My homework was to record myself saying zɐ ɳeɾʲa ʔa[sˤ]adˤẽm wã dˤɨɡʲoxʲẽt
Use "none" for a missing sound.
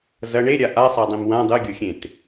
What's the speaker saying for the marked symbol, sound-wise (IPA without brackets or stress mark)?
sˤ